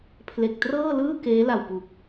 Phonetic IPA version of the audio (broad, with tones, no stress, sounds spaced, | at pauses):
pʰ l e˨˩ k̚ t r ɤː˥˩ l ɯː˥˩ k eː˦˥ l a˨˩ w p u˨˩ k̚